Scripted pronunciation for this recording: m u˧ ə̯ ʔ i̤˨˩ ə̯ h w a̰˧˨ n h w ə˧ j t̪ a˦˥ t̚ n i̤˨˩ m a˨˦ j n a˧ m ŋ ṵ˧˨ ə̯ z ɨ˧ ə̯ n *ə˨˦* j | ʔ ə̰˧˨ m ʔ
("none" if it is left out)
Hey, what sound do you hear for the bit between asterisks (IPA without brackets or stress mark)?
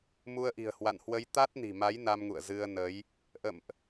ə˨˦